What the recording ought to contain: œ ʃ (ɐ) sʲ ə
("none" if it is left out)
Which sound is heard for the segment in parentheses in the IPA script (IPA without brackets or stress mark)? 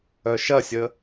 ɐ